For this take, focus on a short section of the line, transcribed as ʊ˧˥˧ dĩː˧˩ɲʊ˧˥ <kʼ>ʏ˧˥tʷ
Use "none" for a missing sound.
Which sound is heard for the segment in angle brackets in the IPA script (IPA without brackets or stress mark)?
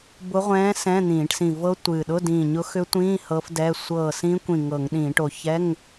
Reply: x